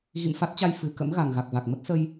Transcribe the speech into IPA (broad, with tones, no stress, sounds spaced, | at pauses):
ɣ ḭ˧˨ m f a˦˥ t̚ t͡ɕ a˧ j f ɨ˨˩ k ə̰˧˥ m ɣ a˨˩ ŋ ɣ a˨˩ k̚ v a˨˩ k̚ m ə˦˥ t̚ s ə˧ j